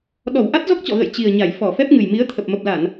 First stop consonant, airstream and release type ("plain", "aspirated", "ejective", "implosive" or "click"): implosive